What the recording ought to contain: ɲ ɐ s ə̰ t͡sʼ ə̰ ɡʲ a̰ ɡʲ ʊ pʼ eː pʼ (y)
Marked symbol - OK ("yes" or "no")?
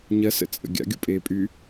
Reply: yes